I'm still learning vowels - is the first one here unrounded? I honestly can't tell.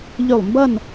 no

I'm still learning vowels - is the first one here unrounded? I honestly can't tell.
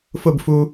no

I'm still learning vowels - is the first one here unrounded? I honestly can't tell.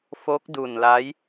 no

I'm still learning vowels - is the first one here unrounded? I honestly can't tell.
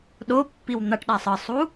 no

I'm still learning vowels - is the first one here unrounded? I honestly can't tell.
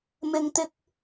yes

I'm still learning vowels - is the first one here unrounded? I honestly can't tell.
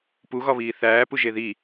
no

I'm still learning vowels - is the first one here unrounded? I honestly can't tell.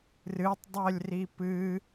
yes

